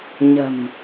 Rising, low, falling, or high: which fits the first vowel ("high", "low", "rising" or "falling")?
low